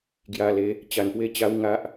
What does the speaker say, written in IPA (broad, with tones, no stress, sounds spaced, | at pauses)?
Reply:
ɡ j a˧ l e˧ | t͡ɕ a˧ n p w e˥˧ t͡ɕ a˦ w ŋ a˦ ʔ